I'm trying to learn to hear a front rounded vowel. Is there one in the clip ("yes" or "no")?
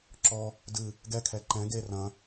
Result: no